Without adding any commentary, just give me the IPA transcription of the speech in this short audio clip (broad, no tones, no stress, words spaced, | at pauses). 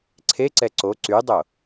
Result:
ǀʰeǀɛ ǀo ǀydˤo